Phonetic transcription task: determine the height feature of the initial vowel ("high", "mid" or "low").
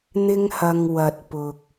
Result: high